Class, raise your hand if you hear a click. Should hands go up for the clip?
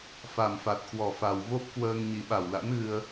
no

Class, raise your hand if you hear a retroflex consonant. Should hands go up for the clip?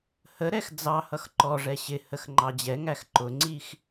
yes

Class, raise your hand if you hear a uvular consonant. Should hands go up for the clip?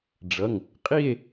yes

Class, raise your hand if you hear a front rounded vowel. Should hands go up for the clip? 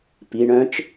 yes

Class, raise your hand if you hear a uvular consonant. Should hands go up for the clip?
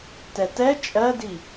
no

